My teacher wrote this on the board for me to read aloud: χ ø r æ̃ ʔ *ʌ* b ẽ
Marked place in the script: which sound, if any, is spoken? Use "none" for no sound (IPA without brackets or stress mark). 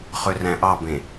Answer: ɑ